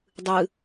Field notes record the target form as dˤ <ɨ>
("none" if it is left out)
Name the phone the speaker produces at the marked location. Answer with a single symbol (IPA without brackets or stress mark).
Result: ɨ